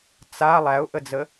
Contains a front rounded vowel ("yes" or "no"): no